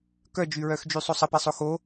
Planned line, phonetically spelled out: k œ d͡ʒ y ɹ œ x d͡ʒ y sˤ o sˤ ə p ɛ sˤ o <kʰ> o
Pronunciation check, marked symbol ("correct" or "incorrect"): incorrect